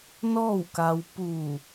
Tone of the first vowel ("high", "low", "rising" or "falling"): falling